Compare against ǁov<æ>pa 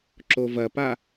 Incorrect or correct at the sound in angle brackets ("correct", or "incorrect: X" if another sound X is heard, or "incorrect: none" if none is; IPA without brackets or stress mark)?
incorrect: ɐ